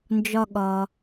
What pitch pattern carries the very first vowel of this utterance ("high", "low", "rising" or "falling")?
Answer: high